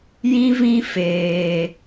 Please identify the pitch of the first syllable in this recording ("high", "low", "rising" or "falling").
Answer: high